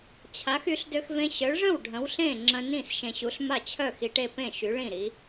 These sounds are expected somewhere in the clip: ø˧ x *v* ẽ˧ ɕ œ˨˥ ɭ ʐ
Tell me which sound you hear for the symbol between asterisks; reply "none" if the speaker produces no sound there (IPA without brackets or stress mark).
v